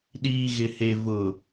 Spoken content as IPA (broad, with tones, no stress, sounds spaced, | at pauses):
ɗ iː˨ ɣ ɪ˨ h e˨ v ʊ˨